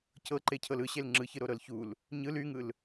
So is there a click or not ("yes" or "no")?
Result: yes